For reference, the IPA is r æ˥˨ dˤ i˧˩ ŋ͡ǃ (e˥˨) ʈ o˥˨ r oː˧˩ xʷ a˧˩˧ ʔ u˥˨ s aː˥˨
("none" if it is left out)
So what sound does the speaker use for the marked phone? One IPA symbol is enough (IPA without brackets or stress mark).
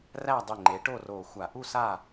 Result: e˩˥